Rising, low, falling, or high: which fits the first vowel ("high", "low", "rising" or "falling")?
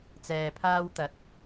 low